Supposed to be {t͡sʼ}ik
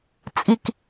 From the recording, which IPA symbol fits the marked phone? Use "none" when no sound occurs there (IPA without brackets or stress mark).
t͡sʼ